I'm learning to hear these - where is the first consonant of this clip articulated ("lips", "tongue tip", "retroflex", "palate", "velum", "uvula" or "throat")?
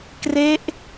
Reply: velum